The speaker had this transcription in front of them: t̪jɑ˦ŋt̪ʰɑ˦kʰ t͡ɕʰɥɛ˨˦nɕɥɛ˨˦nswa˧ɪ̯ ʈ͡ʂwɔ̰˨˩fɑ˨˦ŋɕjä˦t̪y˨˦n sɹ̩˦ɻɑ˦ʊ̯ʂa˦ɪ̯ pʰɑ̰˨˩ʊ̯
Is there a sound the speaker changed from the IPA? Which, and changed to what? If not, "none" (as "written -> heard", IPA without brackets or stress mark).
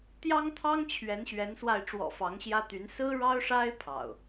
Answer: kʰ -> ŋ